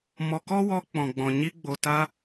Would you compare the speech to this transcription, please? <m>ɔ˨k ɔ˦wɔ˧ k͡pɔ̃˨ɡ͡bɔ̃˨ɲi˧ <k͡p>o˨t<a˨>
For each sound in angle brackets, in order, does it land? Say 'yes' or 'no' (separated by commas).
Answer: yes, no, no